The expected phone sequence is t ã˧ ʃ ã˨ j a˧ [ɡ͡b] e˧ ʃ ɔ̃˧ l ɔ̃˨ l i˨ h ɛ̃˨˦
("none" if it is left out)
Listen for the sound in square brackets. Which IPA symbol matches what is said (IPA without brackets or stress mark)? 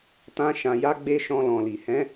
ɡ͡b